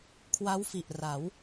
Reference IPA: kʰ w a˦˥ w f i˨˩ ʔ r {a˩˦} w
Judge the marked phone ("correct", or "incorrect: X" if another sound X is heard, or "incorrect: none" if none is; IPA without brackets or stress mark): correct